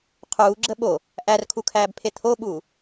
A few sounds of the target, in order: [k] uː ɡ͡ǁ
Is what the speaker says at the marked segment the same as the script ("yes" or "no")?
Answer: no